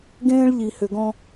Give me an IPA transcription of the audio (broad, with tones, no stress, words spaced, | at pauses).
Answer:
ɡẽː˦ɭʎi˨hʏ˨ɡɔ̃˦